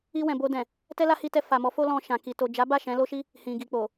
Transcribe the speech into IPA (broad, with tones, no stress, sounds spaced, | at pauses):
i˧ w ɛ̃˨ b o˧ d ɛ̃˨ | t ɛ˦ l a˦ h i˧ t ɛ˧ f a˨ m ɔ˨˦ f o˦ l ɔ̃˧ ʃ ã˨ k i˨ t o˨ d͡ʒ a˨˦ b a˦˨ ʃ ɛ̃˨˦ l o˦ ʃ i˦ | h ĩ˨ ɡ i˨ k͡p o˨